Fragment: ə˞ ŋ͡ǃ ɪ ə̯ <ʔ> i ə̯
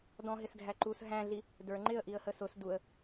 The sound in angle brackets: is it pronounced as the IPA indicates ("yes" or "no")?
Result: yes